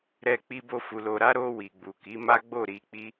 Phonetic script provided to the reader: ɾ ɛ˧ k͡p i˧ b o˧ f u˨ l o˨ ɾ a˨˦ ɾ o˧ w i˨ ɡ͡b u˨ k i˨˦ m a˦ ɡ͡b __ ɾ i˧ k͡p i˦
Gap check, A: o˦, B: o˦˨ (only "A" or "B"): B